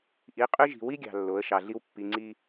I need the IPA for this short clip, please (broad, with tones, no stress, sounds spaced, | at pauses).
ʔ i˨˦ qʼ y˦ ʒ i̤˨ w i˦ ɡʲ ɑ̤˨ lː o˨˦ ə̯ ʃ ɑ˨ ɮ i˦ w pː i˨ ŋ͡ǀ i˦